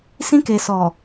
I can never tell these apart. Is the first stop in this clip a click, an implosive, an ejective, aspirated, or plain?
plain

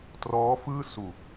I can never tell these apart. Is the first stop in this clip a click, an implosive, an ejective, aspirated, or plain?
plain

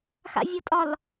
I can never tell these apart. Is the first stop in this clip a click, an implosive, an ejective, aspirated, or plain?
ejective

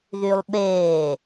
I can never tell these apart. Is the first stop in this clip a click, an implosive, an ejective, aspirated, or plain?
implosive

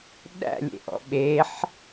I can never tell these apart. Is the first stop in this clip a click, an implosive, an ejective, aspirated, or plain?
implosive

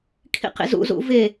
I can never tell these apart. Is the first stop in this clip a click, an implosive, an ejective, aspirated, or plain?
aspirated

